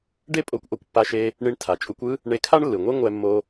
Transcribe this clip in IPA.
ɖ e˥ pʼ o˧ kʷ ʔ o˧ kʷ pː a˧ ʃ e˧ | ɳ i˧ ɳ tʰ a˩ t͡ʃʼ u˧ kʷ ɯ˥ | ɳ e˧ kʰ a˥ ɳ lː ɯ˩ ŋʷ e˥ ŋʷ ɛ˧ mː o˧

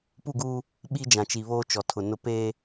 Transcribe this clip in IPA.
p u˦˨ ɡ uː˦ | ɓ i˦ d͡ʒ ã˨ t͡ʃ i˨ β oː˦ t͡ʃ ɔ˨ tʰ ʊ˨ n ʊ˦ p eː˦

